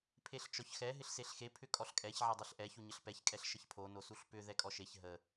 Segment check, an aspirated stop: present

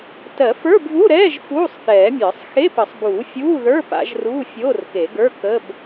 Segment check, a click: absent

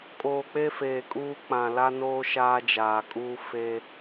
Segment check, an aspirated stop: absent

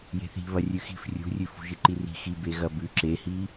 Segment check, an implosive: absent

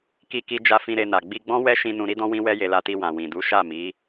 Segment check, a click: absent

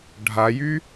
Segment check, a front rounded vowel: present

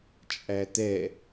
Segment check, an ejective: present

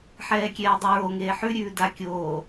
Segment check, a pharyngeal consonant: present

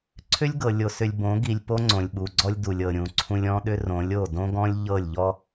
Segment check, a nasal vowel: present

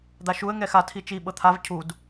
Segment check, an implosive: present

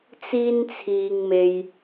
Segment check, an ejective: absent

